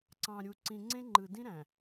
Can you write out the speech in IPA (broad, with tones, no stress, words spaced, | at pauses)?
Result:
ǀɑ̃˨ ɾʲu˨ǀĩ˨ŋ͡ǀẽ˦ ŋ͡ǃɯ˨ dĩ˦ɾæ̃˨